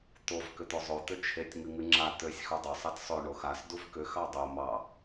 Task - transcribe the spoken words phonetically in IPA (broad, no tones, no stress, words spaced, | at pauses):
t̪ov kʏt̪ozˤo t̪ʏt͡ʃʰetʲ ŋɨŋɨŋ͡ǁa t̪øsʲ xudˤo sˤetsˤø ɳoxas duvkʏ xɑdˤo mɑ